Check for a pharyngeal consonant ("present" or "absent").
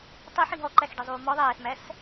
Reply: present